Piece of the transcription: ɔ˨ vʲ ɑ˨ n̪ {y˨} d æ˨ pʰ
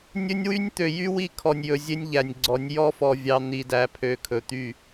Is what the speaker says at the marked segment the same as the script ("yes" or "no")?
no